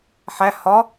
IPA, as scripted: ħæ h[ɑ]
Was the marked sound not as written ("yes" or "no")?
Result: yes